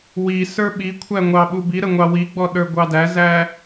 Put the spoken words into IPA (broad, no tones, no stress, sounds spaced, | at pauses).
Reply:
w i s ə˞ ɓ i kʷʰ æ ŋʷ ɑ ɓ u b i ɾ ə ŋʷ ɑ w i ɡ͡b ɔ ɗ ə˞ ɡʷ ɑ d æ z æ